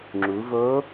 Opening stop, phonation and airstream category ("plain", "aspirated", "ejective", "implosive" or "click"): click